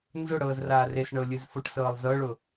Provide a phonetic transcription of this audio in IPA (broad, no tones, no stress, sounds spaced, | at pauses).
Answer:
n z ʊ ɽ ɤː z r aː r e s ɳ ɤ lʲ ɨ z f ʊ ʈ s ɤː lˠ z ɤ ɭ ʊ